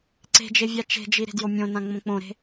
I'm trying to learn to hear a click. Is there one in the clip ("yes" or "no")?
yes